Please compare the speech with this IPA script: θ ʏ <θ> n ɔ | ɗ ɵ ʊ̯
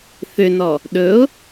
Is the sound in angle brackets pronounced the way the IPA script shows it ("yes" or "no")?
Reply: no